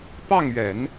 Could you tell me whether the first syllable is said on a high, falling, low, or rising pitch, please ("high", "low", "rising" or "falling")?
falling